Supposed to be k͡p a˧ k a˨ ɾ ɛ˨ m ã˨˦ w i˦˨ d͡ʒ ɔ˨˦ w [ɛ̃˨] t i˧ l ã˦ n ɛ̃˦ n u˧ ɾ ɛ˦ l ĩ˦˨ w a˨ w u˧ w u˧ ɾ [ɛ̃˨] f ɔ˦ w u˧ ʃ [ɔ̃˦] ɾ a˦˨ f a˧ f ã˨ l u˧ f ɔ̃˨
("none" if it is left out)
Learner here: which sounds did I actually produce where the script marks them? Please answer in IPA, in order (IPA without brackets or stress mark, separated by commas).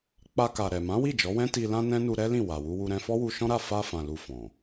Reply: ɛ̃˦, ɛ̃˧, ɔ̃˦